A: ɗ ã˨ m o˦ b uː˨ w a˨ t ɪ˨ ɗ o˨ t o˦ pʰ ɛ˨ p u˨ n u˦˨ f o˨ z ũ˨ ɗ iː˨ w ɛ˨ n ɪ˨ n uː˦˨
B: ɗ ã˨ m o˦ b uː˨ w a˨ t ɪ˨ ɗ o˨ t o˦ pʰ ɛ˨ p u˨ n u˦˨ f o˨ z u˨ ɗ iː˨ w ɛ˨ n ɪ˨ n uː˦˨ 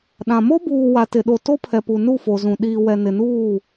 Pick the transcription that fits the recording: A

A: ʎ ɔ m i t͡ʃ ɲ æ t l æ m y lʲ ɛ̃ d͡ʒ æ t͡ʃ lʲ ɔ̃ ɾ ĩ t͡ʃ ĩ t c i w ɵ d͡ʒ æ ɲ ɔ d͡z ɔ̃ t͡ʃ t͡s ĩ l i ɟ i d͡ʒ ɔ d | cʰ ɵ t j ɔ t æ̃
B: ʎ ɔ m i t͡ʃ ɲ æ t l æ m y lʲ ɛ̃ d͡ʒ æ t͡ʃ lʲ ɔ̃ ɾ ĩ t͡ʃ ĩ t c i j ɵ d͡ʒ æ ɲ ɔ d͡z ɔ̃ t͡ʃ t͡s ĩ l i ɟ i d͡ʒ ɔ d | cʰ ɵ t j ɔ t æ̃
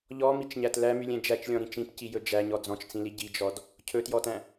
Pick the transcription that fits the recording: B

